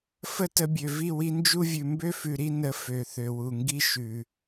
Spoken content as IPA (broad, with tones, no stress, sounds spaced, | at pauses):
f ə˦ t ə˧ bʲ ø˨ v i˦˨ w i˧ n d͡ʒ u˦ vʲ ʉ˨ m b ø˦ f ʉ˨ ɾ i˦ n ə˧ f ø˨ θ ø˨ w u˨ ŋ ɡ i˦ ʃ ʉ˨